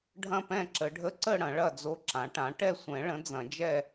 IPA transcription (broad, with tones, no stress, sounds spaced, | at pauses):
ɖʱ ɐ̃˦˨ p ɛ̃˦˨ ǁ ə˨˩˦ ɖʱ ə˧˥ ǀ ə˦˨ ɽ ɐ̃˨˩˦ ɭ ɐ˦˨ d͡z o˧˥ ǁ ã˩˥ ʈ ã˩˥ ʈ ɛ˦˨ sʷ ɛ̃˨˩˦ ɭ ə̃˩˥ d͡z ɐ̃˨˩˦ d͡ʒ ɛ˦˨